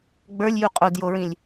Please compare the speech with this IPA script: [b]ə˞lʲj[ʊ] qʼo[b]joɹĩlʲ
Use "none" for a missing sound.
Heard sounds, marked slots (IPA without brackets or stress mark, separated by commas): ɡ͡b, u, d